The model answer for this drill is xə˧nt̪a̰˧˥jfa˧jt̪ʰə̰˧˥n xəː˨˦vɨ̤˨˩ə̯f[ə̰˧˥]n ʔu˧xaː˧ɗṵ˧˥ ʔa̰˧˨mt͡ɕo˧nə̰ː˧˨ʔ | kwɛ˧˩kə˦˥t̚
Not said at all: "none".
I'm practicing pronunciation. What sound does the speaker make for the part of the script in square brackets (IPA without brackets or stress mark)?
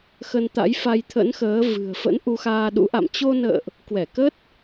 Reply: ə̰˧˥